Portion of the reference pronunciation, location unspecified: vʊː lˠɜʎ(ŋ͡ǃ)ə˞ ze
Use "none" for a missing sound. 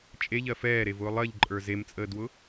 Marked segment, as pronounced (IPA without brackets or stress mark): ǃʼ